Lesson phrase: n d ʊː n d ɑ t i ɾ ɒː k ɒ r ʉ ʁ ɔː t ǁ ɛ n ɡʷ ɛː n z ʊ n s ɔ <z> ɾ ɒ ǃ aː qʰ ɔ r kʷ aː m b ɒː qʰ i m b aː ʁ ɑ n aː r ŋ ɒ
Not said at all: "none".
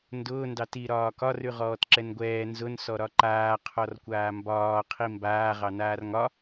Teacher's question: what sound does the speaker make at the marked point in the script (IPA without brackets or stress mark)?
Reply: none